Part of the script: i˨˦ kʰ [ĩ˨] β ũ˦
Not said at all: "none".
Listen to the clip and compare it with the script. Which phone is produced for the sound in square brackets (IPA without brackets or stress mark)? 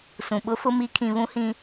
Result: ĩ˨